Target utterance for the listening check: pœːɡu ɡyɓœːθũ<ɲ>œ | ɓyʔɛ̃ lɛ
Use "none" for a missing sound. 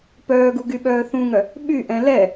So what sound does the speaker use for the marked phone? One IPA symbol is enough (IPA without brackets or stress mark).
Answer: ŋ